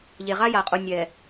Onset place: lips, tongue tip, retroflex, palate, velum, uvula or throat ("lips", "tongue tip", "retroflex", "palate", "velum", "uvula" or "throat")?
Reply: palate